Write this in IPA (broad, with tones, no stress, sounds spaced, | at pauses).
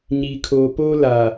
ɲ iː˨ kʰ oː˨ p oː˦ l aː˨